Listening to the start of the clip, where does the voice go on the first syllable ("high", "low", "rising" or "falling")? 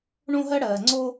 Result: high